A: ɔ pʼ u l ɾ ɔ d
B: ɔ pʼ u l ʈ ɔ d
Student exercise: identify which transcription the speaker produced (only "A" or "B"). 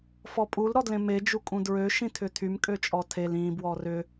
A